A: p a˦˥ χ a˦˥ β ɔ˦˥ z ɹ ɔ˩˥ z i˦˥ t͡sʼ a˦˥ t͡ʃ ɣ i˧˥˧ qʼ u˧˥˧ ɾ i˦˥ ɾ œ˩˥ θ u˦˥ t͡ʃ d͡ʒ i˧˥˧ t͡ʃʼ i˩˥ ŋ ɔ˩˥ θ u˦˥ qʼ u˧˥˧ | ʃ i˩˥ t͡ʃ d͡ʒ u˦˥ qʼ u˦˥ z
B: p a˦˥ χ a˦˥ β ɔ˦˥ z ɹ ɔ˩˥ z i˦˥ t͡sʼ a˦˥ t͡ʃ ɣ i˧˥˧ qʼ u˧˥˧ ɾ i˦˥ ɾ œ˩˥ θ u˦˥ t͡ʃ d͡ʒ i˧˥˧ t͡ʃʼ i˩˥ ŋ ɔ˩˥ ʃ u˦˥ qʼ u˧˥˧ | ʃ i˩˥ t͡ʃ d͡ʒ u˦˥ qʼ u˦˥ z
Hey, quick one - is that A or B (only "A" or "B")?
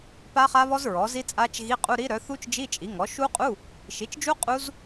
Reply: B